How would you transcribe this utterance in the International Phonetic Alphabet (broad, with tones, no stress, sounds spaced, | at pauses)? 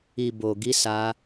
i˧ b o˧ ɡ i˦ s a˦